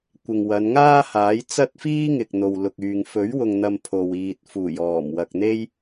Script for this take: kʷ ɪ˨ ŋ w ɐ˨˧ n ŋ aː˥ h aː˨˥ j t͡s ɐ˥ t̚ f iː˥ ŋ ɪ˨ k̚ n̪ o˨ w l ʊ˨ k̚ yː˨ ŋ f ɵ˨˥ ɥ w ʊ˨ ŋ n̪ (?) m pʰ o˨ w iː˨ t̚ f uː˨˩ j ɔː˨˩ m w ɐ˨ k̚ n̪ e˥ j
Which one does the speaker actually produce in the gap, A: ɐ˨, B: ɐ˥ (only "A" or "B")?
A